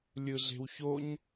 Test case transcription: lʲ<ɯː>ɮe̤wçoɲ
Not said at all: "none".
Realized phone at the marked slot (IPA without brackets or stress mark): ɯ